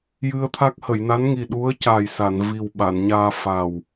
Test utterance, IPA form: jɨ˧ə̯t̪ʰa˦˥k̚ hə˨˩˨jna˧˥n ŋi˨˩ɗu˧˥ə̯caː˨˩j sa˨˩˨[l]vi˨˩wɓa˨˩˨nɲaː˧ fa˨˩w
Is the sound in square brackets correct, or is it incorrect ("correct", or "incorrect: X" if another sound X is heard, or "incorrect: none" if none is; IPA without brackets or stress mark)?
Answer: incorrect: n